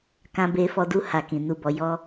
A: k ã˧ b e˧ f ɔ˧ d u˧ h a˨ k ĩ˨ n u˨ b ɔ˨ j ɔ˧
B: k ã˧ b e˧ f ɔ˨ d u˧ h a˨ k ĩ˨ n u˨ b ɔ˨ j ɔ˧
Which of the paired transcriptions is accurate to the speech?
A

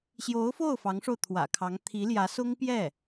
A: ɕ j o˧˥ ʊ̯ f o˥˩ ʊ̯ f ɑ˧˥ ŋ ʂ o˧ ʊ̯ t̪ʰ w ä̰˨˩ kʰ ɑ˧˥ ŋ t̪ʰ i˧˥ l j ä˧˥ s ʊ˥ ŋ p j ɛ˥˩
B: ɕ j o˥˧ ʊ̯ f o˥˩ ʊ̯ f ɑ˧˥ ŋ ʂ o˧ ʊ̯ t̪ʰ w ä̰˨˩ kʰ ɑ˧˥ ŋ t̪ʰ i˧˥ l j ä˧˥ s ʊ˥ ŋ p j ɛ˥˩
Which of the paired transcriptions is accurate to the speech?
A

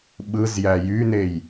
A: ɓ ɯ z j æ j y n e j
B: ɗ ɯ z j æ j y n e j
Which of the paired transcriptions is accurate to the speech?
A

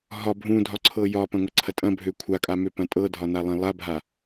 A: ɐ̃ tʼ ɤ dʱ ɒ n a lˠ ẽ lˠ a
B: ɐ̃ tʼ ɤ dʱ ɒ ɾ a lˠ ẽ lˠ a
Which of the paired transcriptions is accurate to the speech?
A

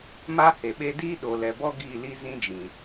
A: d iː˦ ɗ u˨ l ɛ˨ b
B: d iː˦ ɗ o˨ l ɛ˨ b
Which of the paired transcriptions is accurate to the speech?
B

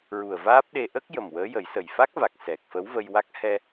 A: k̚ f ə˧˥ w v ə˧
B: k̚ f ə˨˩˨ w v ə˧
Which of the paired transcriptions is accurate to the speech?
A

